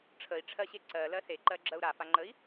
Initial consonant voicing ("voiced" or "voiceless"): voiceless